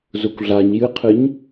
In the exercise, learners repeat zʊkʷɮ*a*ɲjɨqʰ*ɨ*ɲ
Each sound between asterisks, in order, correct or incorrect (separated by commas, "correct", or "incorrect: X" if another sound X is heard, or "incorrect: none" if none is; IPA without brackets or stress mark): correct, correct